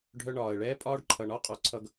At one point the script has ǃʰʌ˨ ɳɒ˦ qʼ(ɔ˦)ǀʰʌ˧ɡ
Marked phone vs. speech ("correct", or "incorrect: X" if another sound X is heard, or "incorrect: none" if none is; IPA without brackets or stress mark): incorrect: ɔ˨